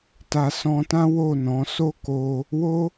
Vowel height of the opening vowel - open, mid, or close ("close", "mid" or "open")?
open